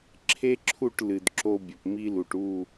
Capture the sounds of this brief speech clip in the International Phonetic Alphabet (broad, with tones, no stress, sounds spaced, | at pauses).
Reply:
ǁʰ e˦ ǁʰ u˦˨ ʈ l ɨ˨ d ǁ o˦ bʲ ɵ˨ p m i˦ l u˨ ʈ u˦˨